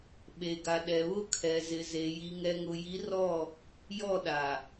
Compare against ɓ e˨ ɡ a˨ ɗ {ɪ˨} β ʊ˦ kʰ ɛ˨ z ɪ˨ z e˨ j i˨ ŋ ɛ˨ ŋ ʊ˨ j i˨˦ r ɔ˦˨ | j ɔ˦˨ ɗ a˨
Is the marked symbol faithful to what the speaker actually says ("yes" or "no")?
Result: no